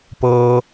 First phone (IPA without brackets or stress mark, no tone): p